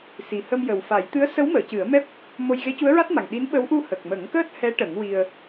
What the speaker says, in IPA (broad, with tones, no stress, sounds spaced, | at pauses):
s i˨˩ h ə˧ m j ə˨˩ w f a˨˩˦ j t̪ ɨ˧˥ ə̯ s ə˧˥ w m əː˨˩˨ c ɨ˨˩˦ ə̯ m ɛ˦˥ p̚ | m o˧ j ɣ e˧˥ c u˧˥ ə̯ ɹ a˦˥ t̚ m a˨˩ ŋ ɗ i˧˥ n ɓ ə˧˥ w ʔ u˧ h ə˨˩ k̚ m ə˨˩˦ ŋ k əː˦˥ t̚ h ɛ˧˥ ʈ ə˨˩˦ ŋ w i˧ ə̯